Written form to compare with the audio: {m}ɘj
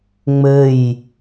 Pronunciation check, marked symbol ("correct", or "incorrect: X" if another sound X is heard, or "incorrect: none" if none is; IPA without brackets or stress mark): incorrect: ŋ͡m